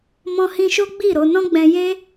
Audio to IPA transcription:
m ɔ̃˧ h ĩ˧ ʃ o˦ ɡ͡b i˦˨ ɾ o˧ n ɔ̃˦ ɡ͡b ɛ̃˧ j e˦

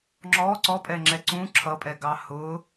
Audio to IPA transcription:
ŋ͡ǁ ɔ ǀ ɔ pʼ ɛ ŋ͡ǁ ɛ ǀ ũ ǁʰ ʌ pʼ ɛ ɡ ɑ h ʊ

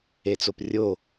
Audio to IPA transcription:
e t͡s o p rʲ o

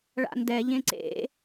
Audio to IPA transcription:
ɭ a̰ n d ɛ ʎ ẽ ǀ ḛ

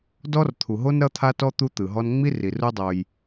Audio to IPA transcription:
d ɔ˦ r t̪ʰ u˨ ɦ o˦ n ɾ ʌ˦ t̪ʰ a˦ t ɔ˦ t̪ u˦ t̪ ɯ˨ ɦ ɔ˦ n ŋ͡m i˦ r i˨ r u˦ dˤ o˧ j

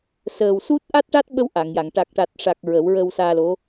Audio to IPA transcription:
s əː˨˩ w s u˦˥ t̚ ʔ a˦˥ t̚ ʈ a˦˥ t̚ ɓ ə˧ w ʔ a˨˩˨ ŋ j a˨˩˨ ŋ ʈ a˨˩ k̚ ʈ a˨˩ t̚ ʂ a˨˩ k̚ ɹ ə˨˩˦ w ɹ ə˧ w s aː˧ l o˧˥

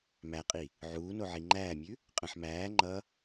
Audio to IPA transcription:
m æ qʼ i | ʕ uː n o ʕ i ŋ͡ǃ æː mʲ ʉ | qʼ ə̃ ħ m æː ŋ͡ǃ ʌ

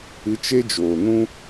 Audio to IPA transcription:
ɨ˧ t͡ʃ e˦ d͡ʒ oː˨ n ũ˦

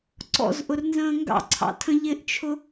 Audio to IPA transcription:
ǀ ɔ̰ z ʔ ʊ r n z ə̃ː ŋ ɡ ɑ̰ ǀʰ ɑ̰ tʰ ə̃ ʎ ɪ ʔ t͡ʃʰ ʊ

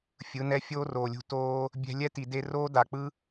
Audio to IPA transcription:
fʲ ɯ˨˦ n ɛ˦ fʲ oː˦ r oː˨ lʲ ṳ˧ t oː˧ | bʲ ɛ̤˧ lʲ ɛ˦ t i˨ d e˧ r oː˦ d a˨ k͡p ɯ˦

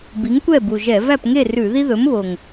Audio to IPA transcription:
b i˨˥ ŋ kʷ ɛ˥˨ b u˨˩ ʒ ɛ˧˩˧ v æ˥˨ p ŋ e˥˨ r ʉ˧˩˧ ð i˥ ð ɵ˨˥ m β o˨˩ ŋ

